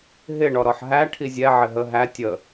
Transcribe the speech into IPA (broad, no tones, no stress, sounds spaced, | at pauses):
ɦ ɪ ɳ ɔ ɾ ɔ ħ ɦ æ ʈʰ i zʲ ɛ ʕ ɪ ɦ ə ɦ æ tʲ ə